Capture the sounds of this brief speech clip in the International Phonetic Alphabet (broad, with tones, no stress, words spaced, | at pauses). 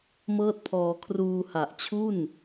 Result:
mɤː˥˩t̚pʰɔː˧ kʰruː˧ha˨˩ʔt͡ɕʰu˥˩n